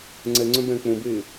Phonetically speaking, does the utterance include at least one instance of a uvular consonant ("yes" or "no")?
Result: no